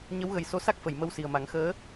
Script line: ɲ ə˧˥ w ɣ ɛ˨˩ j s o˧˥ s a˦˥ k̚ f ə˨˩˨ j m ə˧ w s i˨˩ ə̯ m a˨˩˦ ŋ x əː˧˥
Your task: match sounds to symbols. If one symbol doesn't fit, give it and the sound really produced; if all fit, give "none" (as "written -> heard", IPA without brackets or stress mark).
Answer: ɛ˨˩ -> ə˨˩